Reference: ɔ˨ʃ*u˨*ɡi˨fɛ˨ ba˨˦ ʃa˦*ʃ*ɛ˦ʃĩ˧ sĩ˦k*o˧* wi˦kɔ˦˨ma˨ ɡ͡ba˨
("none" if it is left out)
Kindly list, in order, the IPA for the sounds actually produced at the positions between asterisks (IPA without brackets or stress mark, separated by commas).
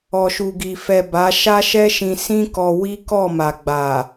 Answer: u˨, ʃ, ɔ˧